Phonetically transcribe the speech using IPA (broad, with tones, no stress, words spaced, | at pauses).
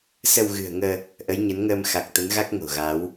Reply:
sə˧wɣɨ̤˨˩ə̯ŋəː˧ | ʔə˨˦jɲə˨˦nŋəː˧m xa˨˩k̚t̪ə˨˦nɣa˦˥k̚ ŋo̤˨˩ɣa˨˦w